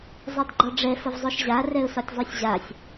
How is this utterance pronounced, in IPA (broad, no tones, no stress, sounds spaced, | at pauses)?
zˤ ɛ d ɡ͡ǃ ɒ ɖ͡ʐ ɛ f ə v zˤ o ʃ ʑ a r ɛ ʊ̯ s ɒ tʲ zˤ u sʲ ʑ a sʲ